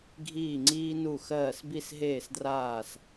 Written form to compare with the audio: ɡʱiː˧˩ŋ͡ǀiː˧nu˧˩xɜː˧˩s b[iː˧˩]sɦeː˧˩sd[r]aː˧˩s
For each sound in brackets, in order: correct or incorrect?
incorrect: i˧˩, correct

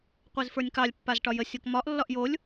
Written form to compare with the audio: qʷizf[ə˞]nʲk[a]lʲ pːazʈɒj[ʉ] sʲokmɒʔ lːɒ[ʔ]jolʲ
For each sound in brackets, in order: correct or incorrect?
correct, incorrect: ɑ, incorrect: ə, correct

